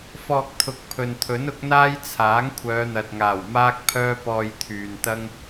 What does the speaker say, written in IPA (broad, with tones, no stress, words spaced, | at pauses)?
fɔː˧k̚t̪ʰʊ˨˥k̚pʰɵ˨nt̪ʰɵ˨˥n ʊ˨˥k̚n̪aː˥jt͡sʰaː˨˥ŋ kʷʰœː˨˧n̪ɐ˨t̚ŋaː˨˩w maː˥k̚pʰœː˥pɔː˧j t̪ʰyː˨nt̪ɐ˥ŋ